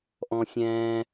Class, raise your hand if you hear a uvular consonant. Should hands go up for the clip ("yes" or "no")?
no